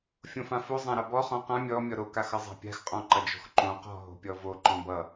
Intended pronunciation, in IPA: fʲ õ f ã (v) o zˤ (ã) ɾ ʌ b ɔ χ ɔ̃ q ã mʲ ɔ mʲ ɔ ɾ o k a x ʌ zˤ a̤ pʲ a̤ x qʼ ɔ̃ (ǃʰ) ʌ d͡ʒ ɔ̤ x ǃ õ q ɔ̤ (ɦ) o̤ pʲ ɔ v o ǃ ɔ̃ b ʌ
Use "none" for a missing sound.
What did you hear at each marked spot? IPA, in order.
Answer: f, ã, ǃ, ɦ

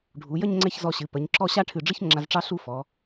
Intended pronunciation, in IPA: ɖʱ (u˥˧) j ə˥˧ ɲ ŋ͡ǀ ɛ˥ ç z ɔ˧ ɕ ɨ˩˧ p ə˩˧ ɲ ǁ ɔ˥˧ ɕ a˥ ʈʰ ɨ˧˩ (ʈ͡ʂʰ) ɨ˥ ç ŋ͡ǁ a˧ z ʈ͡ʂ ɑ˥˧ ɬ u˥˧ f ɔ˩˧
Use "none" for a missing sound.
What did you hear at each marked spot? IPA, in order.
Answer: u˩˧, ɖ͡ʐ

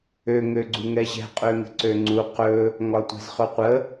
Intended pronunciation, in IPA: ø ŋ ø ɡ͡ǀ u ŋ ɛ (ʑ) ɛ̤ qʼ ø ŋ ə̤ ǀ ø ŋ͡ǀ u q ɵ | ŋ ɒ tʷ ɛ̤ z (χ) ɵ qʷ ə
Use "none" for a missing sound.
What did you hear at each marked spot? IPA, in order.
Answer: ʑ, χ

